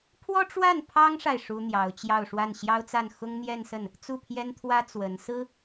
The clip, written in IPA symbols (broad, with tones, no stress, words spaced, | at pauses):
pʰwɔ˥ʈ͡ʂwa˥˩n pʰɑ˥ŋʂa˨ɪ̯ ʂu˥n̪jɑ˧˥ʊ̯ t͡ɕjɑ˥˧ʊ̯ʂwa˥˩n ɕjɑ˥ʊ̯t͡sa˥˩n xʊ˥ŋn̪jɛ˥˧nsə˥˩n | t͡su˥˩pʰjɛ˥nt̪ʰwä˥ t͡swə˧˥n sɹ̩˥